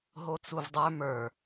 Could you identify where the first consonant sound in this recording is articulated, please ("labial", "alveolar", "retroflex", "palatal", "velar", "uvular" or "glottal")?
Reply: glottal